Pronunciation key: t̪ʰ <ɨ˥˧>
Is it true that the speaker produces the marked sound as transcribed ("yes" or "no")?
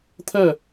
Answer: no